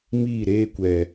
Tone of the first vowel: falling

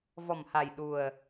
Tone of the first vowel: low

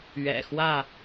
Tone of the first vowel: low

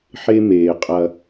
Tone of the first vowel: high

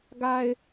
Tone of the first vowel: low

